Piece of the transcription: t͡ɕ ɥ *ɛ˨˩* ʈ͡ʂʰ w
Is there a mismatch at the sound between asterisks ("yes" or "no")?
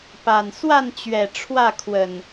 no